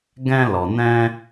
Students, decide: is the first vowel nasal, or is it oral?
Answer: nasal